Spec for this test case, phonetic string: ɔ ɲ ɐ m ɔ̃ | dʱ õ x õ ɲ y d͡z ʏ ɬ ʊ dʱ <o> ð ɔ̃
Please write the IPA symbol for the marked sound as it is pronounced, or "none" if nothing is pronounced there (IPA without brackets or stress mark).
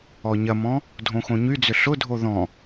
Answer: o